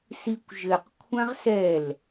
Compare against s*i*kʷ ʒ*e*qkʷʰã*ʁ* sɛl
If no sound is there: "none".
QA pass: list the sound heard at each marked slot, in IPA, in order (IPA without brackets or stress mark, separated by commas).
i, ɘ, ʁ